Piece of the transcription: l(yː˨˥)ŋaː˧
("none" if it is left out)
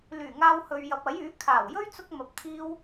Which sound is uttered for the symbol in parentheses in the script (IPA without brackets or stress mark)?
yː˨˩